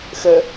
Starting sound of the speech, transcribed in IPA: x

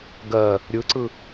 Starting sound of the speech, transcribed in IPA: ɡ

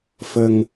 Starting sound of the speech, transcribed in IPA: f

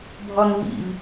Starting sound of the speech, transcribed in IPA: bʱ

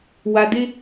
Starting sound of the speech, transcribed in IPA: w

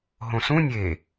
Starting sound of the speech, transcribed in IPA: ɦ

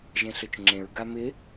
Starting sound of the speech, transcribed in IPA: ʒ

